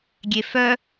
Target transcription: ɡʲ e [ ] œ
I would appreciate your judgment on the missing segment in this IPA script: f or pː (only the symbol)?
f